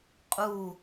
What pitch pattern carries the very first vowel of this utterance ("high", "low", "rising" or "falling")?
falling